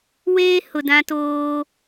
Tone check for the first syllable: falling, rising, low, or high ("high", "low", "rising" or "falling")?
high